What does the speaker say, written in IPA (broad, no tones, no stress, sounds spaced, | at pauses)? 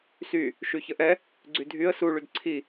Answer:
s y | ʃ y ç ə ʔ ɛ | ɡ͡ǀ y dʱ y ə̯ s u ɭ y d ǀʰ i